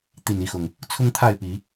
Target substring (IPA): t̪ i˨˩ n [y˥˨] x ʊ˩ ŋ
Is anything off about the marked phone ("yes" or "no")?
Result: yes